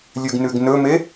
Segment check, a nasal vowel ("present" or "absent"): absent